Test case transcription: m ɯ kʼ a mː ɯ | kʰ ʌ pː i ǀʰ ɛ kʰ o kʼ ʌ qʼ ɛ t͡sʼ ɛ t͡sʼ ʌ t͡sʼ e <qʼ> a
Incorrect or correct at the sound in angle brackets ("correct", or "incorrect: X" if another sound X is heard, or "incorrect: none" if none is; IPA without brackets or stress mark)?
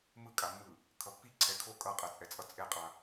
correct